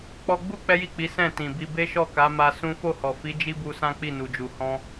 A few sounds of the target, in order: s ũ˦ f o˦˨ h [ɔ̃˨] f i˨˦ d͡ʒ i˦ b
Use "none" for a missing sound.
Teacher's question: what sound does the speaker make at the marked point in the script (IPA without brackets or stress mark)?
ɔ˨